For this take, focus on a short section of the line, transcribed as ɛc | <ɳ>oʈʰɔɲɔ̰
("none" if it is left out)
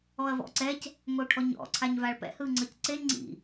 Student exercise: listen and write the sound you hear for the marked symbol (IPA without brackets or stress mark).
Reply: ŋ